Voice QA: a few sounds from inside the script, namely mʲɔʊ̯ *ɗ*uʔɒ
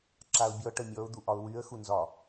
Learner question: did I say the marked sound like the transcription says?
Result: no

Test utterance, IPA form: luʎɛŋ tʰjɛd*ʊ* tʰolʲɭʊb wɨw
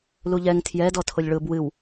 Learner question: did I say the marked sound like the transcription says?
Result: no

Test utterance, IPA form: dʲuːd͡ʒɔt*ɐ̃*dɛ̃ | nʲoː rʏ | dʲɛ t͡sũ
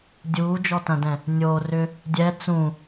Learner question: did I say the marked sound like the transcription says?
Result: yes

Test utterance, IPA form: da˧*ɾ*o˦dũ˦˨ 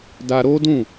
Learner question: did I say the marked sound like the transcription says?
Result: yes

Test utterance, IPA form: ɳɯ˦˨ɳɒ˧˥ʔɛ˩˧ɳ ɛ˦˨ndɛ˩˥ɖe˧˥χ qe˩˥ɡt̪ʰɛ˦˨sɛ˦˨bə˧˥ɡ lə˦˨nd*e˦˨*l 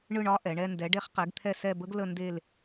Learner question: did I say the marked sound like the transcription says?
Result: yes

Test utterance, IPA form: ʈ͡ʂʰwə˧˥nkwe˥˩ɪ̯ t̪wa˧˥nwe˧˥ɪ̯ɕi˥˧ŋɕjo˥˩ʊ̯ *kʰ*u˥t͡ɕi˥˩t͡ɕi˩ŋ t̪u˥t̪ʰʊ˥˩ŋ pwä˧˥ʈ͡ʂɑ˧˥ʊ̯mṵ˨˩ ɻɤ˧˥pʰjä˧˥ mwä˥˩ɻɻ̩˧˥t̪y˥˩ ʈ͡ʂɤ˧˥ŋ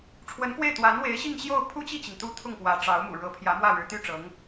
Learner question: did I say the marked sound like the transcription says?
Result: no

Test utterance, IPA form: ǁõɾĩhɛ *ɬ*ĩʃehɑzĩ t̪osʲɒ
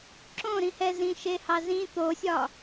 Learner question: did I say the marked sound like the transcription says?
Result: no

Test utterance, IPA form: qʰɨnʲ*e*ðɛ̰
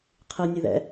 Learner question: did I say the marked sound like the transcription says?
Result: no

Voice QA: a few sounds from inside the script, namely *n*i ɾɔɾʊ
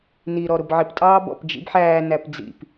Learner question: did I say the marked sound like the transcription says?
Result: yes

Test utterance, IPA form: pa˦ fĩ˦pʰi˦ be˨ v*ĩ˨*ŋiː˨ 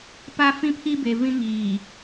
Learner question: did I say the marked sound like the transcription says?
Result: no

